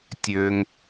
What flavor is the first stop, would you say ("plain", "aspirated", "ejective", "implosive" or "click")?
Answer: plain